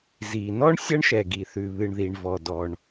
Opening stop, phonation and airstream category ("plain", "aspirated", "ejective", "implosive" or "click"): plain